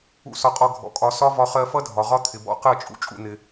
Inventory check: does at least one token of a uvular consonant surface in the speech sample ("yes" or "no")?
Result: yes